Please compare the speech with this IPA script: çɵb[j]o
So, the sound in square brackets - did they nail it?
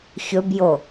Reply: yes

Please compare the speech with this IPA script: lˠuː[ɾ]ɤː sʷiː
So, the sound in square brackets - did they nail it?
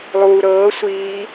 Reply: yes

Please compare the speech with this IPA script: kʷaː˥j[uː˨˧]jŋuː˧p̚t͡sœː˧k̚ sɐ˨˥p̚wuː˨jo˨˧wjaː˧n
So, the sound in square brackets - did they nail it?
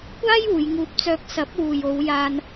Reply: yes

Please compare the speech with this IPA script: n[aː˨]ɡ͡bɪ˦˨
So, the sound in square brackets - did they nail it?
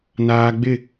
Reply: yes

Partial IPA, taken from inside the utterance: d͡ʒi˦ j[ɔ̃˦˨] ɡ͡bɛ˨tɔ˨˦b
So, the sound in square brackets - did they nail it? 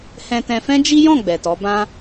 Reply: yes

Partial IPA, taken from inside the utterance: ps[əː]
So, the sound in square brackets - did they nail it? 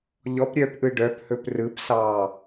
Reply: no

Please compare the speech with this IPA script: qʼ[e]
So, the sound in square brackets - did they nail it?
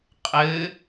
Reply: no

